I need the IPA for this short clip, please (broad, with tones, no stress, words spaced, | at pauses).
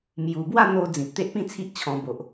mju˨˩bwa˥˧n̪o˧ d͡zĩ˨p̚t̪e˦ʔpĩ˥˧t͡sʰi˦ʔ t͡ɕʰɔ̃˧bo˨ʔ